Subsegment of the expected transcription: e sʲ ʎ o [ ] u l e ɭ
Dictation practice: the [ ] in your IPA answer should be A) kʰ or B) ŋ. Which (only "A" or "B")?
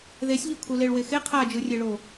A